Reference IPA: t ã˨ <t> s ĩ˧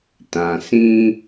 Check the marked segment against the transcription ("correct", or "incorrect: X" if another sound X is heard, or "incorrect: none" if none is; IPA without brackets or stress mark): incorrect: none